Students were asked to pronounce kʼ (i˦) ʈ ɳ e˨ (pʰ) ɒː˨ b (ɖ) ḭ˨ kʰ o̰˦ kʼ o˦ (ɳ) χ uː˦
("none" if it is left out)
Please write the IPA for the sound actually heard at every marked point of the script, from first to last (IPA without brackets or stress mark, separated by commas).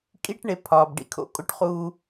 i˦, pʰ, ɖ, ʈ